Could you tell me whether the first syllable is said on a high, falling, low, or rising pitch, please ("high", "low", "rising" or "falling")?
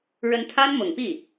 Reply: rising